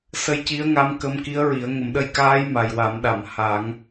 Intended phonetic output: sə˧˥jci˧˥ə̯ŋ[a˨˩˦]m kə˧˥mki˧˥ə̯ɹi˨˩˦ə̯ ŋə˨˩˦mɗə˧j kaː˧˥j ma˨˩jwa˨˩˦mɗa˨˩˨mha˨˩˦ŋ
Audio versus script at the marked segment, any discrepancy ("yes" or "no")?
yes